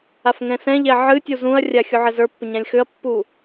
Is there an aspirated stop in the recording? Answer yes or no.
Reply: no